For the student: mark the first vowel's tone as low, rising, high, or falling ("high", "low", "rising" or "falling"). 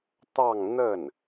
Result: falling